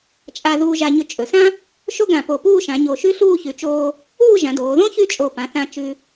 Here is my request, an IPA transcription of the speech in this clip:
t͡ʃʼ a˧ ð uː˧ ʒ a˧ ɲ ɵ˧ t͡ʃʼ ɵ˩˧ s ã˥ | ʃ o˥ ɡ ã˧˩ p o˧˩ p uː˥˧ ʃ ã˩˧ ɲ o˧˩ ʃ ʉ˥ ɬ uː˥˧ ç ʉ˩˧ t͡ʃ oː˧ | uː˥˧ ʒ ã˩˧ d oː˩˧ ð õ˥ ç ʉ˥ t͡ʃʼ o˧˩ p ã˩˧ θ ã˧ t͡ʃ ʉ˧

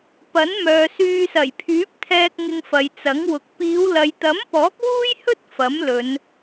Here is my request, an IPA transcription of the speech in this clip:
p ɐ˨˥ n m œː˨ s yː˧ s ɐ˨˩ j pʰ yː˨˥ p̚ t̪ʰ ɛː˧ k̚ ŋ ɪ˧ ŋ f ɐ˨ j t͡s ɐ˨˥ ŋ w ʊ˨ k̚ p iː˨˧ w l ɐ˨ j t̪ ɐ˨˥ m p ɔː˨˥ k̚ w uː˥ j h ɵ˥ t̚ f ɐ˨˥ m l ɵ˨˧ n

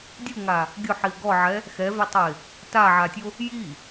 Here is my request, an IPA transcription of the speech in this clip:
dʲ u ŋ a | ɡʲ ʊ ħ i ʊ̯ ɡ ɔ ʕ ɛ | x ɛ v ɛ tˤ ʊ ɪ̯ | t a ʕ a tʲ o | j i

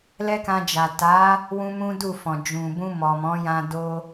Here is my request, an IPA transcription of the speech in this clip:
l ɛ˦ k ã˧ d͡ʒ a˨ t a˨˦ | w ũ˦ m ũ˦ d u˦˨ f ɔ̃˨ d͡ʒ ũ˨ b ũ˧ m ɔ˨ m ɔ̃˨˦ j ã˧ d o˧

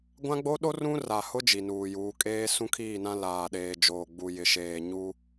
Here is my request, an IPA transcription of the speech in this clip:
ɡʷ ã˦ ɡ͡b o˦ ɗ o˦ r ũ˦ r a˨ h ʊ˦ d͡ʒ i˨ n uː˨ j uː˨˦ kʼ eː˦ s ũ˦ kʰ iː˦˨ n ã˦ l aː˨ ɗ eː˨ d͡ʒ oː˨ ɡ͡b u˨ j ɪ˨ ʃ eː˨ ɲ u˦

